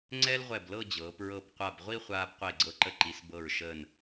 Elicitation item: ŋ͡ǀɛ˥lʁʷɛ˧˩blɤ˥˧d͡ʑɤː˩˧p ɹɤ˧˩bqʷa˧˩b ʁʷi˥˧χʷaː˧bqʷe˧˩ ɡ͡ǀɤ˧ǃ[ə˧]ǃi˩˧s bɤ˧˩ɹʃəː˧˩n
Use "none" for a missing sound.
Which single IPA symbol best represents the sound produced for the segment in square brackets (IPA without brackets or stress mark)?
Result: ə˧